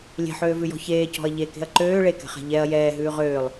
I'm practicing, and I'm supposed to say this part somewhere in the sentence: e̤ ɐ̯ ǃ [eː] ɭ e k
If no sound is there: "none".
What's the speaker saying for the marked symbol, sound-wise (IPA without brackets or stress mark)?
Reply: øː